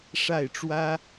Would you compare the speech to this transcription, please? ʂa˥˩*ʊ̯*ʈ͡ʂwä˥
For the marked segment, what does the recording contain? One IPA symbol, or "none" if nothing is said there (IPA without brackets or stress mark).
ɪ̯